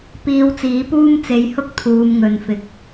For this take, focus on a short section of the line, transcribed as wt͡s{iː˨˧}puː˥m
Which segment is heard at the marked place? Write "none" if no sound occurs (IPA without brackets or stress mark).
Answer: iː˨˧